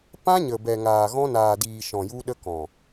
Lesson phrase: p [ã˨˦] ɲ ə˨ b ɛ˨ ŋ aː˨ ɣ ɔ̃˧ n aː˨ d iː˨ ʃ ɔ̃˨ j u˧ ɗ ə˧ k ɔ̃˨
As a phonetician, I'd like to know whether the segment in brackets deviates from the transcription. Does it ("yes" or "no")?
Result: yes